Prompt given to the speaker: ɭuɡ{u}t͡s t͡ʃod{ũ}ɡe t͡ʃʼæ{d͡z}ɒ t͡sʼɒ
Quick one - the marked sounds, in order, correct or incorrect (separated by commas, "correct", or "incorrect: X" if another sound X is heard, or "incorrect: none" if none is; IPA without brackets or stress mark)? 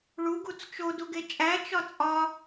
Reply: correct, incorrect: u, incorrect: t͡ʃ